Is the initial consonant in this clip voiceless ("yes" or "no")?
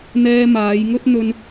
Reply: no